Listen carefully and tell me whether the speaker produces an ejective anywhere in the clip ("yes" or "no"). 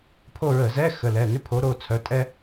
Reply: yes